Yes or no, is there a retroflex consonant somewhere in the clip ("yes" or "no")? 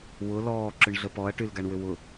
yes